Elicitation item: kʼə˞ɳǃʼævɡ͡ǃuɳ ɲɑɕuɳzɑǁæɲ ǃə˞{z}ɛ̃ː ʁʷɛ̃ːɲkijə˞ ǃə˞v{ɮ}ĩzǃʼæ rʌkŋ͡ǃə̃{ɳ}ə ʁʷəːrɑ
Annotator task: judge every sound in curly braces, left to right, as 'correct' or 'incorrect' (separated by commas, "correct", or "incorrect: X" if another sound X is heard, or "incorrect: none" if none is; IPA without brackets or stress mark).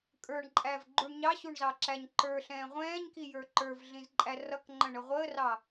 incorrect: ɬ, correct, correct